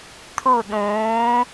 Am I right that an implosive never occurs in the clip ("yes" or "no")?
no